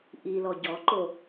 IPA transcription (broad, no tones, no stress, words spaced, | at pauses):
ʔilɔ ɟɔǃo